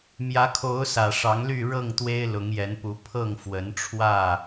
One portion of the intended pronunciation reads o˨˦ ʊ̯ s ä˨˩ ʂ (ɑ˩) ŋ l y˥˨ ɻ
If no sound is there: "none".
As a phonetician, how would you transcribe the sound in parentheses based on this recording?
ɑ˨˦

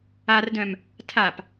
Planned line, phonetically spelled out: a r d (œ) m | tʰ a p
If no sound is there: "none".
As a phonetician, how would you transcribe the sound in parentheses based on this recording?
œ̃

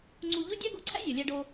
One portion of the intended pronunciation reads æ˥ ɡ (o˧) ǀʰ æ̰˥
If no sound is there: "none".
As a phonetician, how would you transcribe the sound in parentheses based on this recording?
o˧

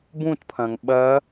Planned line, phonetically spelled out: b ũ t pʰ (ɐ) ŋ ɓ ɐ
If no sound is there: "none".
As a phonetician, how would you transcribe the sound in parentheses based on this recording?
ɐ̃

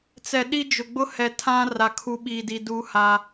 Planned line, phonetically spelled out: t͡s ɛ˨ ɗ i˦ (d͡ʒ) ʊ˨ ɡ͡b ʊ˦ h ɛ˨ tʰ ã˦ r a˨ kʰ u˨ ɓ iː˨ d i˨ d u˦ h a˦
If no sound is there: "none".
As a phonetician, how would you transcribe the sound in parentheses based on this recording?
d͡ʒ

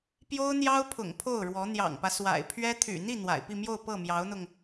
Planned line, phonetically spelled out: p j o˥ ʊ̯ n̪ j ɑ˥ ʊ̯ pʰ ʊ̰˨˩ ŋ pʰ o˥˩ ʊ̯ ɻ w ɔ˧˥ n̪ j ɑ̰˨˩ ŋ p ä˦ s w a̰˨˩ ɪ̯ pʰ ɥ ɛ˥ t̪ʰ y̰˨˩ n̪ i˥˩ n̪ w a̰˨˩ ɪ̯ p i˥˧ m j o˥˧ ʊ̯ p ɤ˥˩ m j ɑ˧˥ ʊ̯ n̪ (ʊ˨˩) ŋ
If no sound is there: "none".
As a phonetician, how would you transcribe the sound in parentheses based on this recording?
ʊ˧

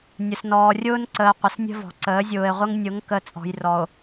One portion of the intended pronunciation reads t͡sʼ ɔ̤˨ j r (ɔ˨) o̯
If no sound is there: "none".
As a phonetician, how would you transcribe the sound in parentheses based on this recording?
ɔ˨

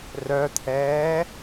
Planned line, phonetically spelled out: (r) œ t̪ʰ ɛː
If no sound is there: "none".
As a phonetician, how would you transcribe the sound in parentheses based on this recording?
r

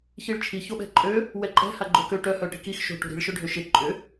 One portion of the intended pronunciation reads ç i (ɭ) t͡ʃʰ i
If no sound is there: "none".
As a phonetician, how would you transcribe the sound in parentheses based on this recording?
ɭ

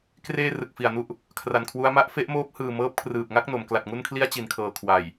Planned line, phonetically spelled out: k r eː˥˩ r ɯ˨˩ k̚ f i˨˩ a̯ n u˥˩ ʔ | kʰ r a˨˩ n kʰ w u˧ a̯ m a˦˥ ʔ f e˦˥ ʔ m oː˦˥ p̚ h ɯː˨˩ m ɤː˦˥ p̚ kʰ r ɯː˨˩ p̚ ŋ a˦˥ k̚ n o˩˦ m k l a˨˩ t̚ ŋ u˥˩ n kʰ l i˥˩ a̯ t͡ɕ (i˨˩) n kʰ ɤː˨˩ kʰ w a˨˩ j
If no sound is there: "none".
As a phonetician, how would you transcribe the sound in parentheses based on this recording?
i˨˩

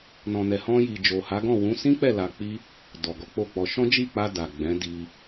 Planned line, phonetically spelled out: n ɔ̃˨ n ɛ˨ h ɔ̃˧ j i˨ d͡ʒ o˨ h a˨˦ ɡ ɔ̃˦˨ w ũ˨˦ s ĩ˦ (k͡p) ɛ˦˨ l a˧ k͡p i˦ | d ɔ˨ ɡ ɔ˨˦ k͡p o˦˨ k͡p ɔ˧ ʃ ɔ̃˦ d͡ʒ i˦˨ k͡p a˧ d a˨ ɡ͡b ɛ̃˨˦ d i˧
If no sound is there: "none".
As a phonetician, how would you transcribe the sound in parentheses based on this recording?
k͡p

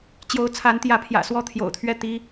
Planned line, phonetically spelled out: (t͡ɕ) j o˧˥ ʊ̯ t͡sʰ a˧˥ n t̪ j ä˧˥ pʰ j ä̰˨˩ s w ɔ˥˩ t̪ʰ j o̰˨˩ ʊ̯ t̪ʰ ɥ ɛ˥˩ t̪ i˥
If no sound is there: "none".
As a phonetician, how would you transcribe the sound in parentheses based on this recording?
t͡ɕ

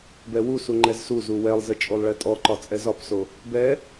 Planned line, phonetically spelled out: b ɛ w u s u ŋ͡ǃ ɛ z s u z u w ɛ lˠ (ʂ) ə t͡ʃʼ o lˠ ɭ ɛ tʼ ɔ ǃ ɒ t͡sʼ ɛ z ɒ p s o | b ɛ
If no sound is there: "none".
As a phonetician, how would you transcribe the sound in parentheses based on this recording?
z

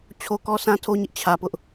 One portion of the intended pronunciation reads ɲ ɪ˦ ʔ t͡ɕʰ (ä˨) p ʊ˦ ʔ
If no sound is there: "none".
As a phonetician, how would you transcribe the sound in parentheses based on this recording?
ä˨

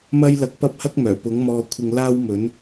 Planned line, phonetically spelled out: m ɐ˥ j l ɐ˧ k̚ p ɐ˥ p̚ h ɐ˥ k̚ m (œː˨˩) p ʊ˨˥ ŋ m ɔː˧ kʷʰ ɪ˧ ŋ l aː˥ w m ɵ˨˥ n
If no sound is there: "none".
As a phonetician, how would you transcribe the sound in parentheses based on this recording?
œː˨˩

